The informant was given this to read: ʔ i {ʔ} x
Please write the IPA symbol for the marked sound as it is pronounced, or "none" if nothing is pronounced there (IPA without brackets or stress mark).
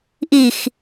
none